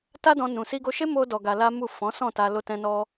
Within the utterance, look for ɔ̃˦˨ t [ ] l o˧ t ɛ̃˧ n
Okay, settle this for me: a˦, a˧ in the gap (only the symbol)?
a˧